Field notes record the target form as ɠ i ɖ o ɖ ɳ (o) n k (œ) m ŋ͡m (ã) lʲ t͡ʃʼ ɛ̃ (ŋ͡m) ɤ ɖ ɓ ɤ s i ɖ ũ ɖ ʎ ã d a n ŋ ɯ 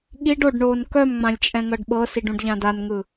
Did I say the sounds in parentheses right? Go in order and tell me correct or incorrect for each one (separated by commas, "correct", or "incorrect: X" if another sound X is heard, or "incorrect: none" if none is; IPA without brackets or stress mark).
incorrect: oː, correct, correct, incorrect: ŋ